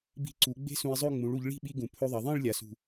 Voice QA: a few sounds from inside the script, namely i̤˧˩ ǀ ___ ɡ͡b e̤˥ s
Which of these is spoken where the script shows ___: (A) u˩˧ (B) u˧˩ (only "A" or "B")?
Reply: A